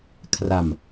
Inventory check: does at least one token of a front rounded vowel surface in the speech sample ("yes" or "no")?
no